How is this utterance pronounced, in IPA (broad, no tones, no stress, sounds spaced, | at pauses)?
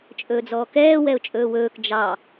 t͡ʃʼ ɵː d͡z ɔː k ɛː w ɛ ʊ̯ t͡ʃʼ ɵː w ɵː k d͡ʒ ɑ